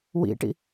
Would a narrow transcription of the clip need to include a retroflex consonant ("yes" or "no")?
yes